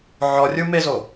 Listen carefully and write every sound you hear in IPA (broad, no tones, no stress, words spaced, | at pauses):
ʕɔrʲumezo